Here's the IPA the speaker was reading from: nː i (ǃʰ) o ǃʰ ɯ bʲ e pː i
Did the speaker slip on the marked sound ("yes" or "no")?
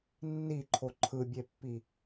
no